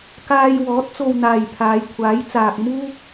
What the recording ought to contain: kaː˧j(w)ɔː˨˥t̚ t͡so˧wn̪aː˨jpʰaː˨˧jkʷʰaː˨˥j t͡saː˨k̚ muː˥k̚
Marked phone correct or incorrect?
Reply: correct